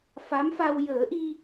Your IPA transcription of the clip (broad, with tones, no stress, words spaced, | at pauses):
fa˧˥mfa˧w jəː˨˩˦ʔi˧